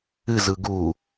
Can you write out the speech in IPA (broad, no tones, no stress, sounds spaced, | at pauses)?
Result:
ɨ z ɯ ɡ u